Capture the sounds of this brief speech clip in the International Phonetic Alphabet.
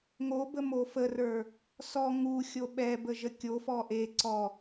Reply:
ŋ o b ə m o f ə r ə˞ | s ɔ ŋ u xʲ o ɓ ɛ b ə ʒ ə kʲ o f ɔ ʔ e ǀ ɔ

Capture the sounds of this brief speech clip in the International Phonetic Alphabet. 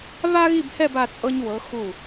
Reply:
β a˥ ɣ i˥˧ b h ɛ˥˧ b a˧ t͡sʼ ɤ˧ ɲ w ɤ˩˧ x u˧˩

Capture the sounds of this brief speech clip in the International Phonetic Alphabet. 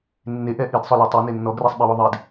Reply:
nː e ʔ ɛ ʔ i d sˤ ʊ l i tˤ i n e nː ɔ ɡ r ɛ sˤ ɓ e w ʊ ðˤ i d

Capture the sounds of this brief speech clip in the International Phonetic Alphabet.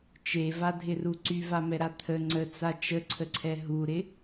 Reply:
t͡ʃ e v a dʱ ɪ r u ǀ y v a m ɛ ɾ a t̪ʰ ə ŋ͡ǀ ə t͡s a t͡ʃ ə ǀʰ ə ǀʰ ɛ ɦ u ɾ ɪ

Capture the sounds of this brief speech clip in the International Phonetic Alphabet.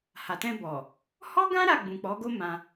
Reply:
h a˨ t ɛ̃˧ b ɔ˨ | h ɔ˦ ɡ ã˦ ɾ a˦˨ ɡ͡b ũ˨ k͡p ɔ˨˦ ɡ o˦ m ã˧

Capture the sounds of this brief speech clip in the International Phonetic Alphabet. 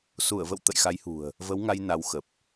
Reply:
s u˧˩ ə̯ v ə̰˧˨ w t̪ ə̰˧˨ j x a˨˦ j h ṳ˨˩ ə̯ | v ə˨˦ w ŋ a˧ j n a˨˦ w x ə˨˩ p̚

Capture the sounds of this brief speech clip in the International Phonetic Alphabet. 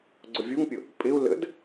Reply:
ɡ͡ǀ ʊ vʲ u ŋ pʲ ʊ | pʼ ɪ u̯ l ə̰ d

